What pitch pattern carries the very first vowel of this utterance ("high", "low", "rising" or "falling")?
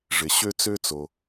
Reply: low